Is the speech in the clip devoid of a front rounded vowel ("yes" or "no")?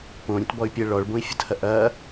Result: no